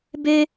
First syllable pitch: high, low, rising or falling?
high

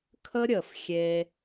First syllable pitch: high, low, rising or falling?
high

